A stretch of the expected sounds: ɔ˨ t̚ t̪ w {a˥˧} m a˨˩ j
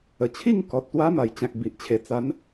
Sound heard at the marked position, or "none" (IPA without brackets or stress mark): a˦